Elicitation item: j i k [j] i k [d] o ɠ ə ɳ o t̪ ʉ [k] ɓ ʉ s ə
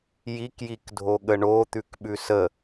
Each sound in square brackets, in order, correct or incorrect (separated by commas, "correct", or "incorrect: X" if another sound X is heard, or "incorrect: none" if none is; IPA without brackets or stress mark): correct, incorrect: dʱ, correct